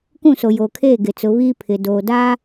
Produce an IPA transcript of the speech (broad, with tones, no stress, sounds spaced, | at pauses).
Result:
k ũ˦˨ s o˨ j oː˨ kʰ eː˦˨ ɡ ɪ˨ t͡s ʊ˨˦ β iː˦ pʰ ɪ˨ d oː˨ d a˦